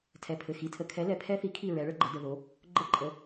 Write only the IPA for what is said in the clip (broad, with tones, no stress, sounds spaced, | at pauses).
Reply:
tʰ ɛ˧˩ pʰ ɘ˧˩ x i˨˥ tʰ ə˧ kʰ ɛ˨˥ l ɛ˧˩ pʰ ɛ˦˥ θ i˨˥ kʰ i˥˨ ɹ ɛ˨˥ ɭ ə˦˥ ɡ͡ǃ ə˨˥ d ə˧ ð o˨˥ | ɡ͡ǃ ə˦˥ ǃʼ ə˨˥